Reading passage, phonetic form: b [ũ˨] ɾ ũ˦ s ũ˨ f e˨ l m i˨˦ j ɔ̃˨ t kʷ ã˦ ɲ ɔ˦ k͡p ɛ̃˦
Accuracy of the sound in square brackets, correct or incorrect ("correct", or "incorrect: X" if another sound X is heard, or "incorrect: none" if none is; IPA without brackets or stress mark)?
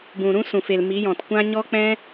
correct